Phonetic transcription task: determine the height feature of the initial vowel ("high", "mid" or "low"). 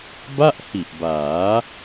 low